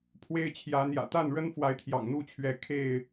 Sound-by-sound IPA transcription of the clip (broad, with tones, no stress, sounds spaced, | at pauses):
pʰ w e˦ ɪ̯ t͡ɕʰ j ä˨˦ n̪ j ä̰˨˩ t̪ a˥˨ n ɻ ə˦ n f w a˨˦ ɪ̯ t̪ʰ j ɑ̰˨˩ ŋ n̪ u˥˨ t͡ɕʰ ɥ ɛ˨˦ kʰ e˥˨ ɪ̯